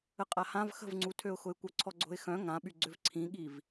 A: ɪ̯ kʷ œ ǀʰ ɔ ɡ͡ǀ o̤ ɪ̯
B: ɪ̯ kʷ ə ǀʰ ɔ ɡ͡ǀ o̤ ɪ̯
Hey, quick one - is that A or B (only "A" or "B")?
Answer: A